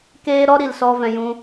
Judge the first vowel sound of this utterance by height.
mid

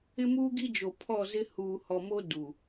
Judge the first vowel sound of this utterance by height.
high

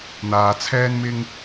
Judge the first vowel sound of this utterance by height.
low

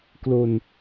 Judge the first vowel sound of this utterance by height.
mid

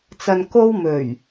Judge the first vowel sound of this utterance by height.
low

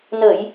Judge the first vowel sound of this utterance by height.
mid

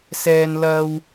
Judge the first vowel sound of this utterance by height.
mid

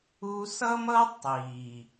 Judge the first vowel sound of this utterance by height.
high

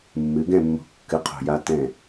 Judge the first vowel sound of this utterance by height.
high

